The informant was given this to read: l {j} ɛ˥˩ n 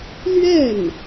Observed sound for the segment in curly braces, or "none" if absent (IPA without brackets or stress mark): ɥ